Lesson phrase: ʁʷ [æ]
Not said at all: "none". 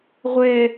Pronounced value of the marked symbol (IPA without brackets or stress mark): ɛ